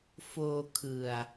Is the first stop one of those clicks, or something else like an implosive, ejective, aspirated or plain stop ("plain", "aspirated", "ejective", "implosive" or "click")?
aspirated